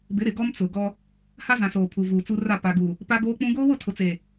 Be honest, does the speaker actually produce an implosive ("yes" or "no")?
no